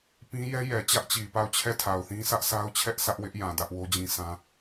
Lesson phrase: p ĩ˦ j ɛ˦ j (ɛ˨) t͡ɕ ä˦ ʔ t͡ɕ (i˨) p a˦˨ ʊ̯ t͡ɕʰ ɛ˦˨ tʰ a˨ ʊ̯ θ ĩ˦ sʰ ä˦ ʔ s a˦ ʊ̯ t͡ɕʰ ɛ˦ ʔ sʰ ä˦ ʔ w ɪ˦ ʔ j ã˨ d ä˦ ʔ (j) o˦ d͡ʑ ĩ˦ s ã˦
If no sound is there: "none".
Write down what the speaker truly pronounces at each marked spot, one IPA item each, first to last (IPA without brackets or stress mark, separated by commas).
ɛ˨, i˨, w